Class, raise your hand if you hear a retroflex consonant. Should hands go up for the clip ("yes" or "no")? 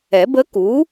no